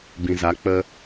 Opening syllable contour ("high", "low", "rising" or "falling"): low